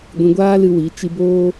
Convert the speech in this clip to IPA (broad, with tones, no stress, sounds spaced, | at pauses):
ɡʷ ĩ˧ ɡʷ aː˦ l ɨ˧ w i˨˦ t͡ʃ i˧ b oː˦